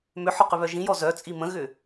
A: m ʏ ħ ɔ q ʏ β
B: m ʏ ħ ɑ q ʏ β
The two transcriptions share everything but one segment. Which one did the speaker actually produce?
A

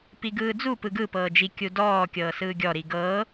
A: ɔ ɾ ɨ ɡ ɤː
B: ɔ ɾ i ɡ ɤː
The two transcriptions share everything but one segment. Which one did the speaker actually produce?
B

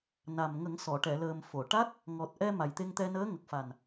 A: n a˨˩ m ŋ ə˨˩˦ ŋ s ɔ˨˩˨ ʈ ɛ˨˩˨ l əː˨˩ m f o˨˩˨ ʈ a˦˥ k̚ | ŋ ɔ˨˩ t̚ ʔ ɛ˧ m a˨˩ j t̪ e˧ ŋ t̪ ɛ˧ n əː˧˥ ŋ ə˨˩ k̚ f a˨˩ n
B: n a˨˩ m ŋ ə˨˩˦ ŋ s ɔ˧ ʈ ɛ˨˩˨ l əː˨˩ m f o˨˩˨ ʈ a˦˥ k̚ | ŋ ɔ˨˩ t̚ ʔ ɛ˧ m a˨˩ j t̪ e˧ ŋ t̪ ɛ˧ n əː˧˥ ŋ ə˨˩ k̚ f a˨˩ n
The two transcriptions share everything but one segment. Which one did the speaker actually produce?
A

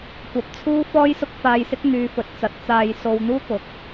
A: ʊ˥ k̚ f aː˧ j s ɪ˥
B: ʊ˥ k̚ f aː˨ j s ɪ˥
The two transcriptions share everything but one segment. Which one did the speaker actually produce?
A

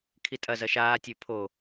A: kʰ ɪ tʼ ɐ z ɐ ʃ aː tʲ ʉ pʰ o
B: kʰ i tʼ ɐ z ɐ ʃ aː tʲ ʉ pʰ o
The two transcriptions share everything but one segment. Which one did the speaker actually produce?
B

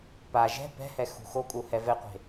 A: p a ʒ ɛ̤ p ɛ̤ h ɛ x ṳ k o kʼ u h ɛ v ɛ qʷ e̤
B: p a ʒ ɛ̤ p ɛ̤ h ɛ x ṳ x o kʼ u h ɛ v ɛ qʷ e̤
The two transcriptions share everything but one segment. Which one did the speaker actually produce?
B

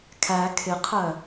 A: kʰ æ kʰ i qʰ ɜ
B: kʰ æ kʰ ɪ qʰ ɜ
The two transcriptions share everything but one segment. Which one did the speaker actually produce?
B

